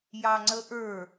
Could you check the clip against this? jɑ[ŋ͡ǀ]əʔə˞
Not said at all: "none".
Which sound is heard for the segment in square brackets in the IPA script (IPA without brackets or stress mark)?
ŋ͡ǀ